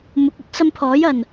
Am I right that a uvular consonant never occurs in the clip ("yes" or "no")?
yes